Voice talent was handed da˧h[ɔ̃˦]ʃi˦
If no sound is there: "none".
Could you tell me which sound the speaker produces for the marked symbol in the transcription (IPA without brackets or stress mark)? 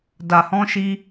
ɔ̃˦